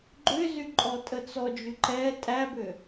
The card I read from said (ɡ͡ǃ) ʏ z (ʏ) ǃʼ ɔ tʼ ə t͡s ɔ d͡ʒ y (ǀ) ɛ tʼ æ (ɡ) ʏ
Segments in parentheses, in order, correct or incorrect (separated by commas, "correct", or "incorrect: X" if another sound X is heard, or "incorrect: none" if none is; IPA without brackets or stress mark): correct, incorrect: y, incorrect: ǃ, incorrect: b